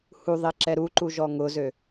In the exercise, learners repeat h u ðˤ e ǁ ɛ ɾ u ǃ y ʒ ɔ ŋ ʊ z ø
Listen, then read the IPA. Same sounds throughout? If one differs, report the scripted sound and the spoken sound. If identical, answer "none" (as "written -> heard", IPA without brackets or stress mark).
y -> u